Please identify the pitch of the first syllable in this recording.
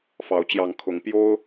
rising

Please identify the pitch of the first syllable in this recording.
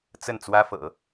falling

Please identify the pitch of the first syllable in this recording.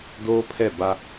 high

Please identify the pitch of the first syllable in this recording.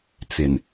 low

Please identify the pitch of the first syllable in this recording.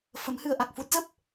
rising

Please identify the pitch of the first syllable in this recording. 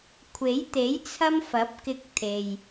rising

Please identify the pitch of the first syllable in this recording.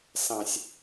low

